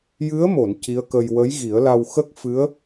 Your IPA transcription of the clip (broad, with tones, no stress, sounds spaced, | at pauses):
j ɨ˧˥ ə̯ m o˨˩˨ n c i˧˥ ə̯ k ə˧ j w ə˧˥ j ɣ i˨˩˦ ə̯ l a˧ w x ə˦˥ k̚ f ɨ˧˥ ə̯